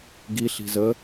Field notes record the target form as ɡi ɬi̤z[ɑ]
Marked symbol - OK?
no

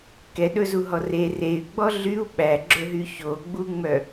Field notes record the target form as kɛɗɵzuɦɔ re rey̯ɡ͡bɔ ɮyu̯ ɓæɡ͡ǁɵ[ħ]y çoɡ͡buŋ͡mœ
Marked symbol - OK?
no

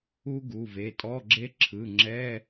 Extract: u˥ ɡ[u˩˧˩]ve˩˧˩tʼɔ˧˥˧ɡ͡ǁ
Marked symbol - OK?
yes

